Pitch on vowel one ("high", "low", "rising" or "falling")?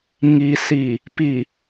low